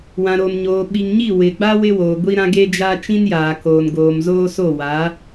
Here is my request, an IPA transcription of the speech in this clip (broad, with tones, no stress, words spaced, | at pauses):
wã˨ɾo˨mɲoː˨ ɓi˨ŋɲi˦˨wɪ˨ɡ͡ba˦ wɪ˦woː˨ɡʷi˦ɾã˦ ɡe˦d͡ʒa˦ t͡ʃĩ˦njaː˨koː˨nɡoː˨m zoː˦so˦˨wa˨˦